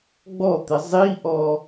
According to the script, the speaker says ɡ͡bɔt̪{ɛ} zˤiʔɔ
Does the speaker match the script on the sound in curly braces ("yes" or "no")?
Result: no